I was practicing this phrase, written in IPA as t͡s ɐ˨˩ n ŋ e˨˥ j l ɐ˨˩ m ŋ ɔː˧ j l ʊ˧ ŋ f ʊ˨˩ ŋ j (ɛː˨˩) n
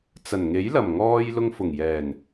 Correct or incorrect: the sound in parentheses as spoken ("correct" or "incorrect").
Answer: correct